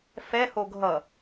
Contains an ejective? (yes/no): no